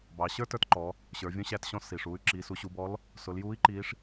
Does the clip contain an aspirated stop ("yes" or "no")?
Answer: no